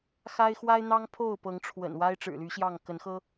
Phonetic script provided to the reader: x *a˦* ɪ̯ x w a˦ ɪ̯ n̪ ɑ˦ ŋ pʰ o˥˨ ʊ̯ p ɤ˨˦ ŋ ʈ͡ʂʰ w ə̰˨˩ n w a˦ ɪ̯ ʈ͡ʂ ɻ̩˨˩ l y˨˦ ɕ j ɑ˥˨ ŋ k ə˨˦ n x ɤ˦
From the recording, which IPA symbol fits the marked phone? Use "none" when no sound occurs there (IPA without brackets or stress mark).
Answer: a˦